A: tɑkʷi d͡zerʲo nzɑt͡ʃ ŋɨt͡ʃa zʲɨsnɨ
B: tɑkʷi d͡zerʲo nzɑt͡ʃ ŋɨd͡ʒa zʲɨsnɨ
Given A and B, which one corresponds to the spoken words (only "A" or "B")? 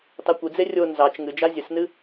B